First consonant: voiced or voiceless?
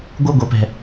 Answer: voiced